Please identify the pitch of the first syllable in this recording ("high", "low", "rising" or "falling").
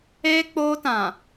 high